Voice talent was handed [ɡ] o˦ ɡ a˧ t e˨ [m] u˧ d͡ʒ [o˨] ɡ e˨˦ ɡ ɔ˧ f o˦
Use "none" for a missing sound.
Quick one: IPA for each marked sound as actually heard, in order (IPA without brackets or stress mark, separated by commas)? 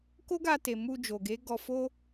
k, m, o˨